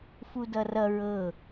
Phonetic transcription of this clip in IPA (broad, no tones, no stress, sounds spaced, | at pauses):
f u d ʌ r ʌ ɹ ɤ